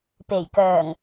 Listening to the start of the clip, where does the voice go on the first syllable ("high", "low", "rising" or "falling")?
low